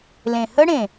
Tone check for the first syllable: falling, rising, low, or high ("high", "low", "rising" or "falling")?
low